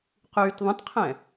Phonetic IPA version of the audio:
qyːtðˤə̃tqʰɛ̃

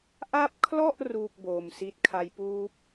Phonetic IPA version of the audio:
ʔa˦˥p̚kʰlɔ˥˩ʔ ruː˥˩k̚boː˨˩msi˦˥t̚kʰa˦˥j puː˦˥p̚

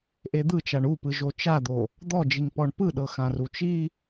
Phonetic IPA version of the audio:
ʔed̪ɯt͡ʃaɳ upɯʒo t͡ʃad̪o | d̪ɔd͡ʒiŋ pɔɳpɯ ɗɤxãrut͡ʃi

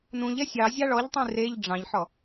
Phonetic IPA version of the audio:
nũʎ ɛsʲɑ zʲɑɭɔʎtˤĩ reʎ ɖ͡ʐɑ̃ʎħɔ

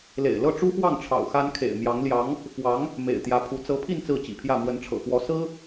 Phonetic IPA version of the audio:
lḛ˨˩ɪ̯lɤ˥˩ʈ͡ʂu˥xwɑ˥˩ŋ ʈ͡ʂʰɑ̰˨˩ʊ̯xa˥nkʰḛ˨˩ɪ̯ mjɑ˧˥ŋljɑ˧˥ŋ | fwɑ˧˥ŋ | mḛ˨˩ɪ̯t̪jä˧˥pʰu˧˥ t͡sɤ˧˥pʰi˥˧n t͡sɹ̩˥˩t͡ɕḭ˨˩pʰjä˥˩ mwə˧˥nʈ͡ʂʰɤ̰˨˩xwɔ˧˥ sɹ̩˥

